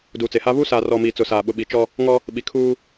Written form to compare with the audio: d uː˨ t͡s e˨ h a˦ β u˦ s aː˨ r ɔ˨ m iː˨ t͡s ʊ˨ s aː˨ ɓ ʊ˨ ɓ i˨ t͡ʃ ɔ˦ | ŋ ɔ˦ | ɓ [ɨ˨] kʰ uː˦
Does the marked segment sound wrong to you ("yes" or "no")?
yes